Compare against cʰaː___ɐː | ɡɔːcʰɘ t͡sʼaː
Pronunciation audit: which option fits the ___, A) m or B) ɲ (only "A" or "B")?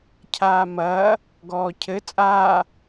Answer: A